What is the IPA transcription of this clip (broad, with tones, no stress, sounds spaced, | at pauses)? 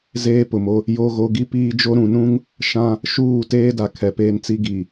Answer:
z eː˦ p ʊ˨ m o˦ | j o˦ ɣ o˦ ɡ i˦ p iː˦ d͡ʒ o˦ ɾ ũ˨ n ũ˦ ŋ | ʃ ã˦ | ʃ uː˦˨ t eː˦ d a˨ kʰ ɛ˨ p eː˦ n t͡s i˦ ɡ i˨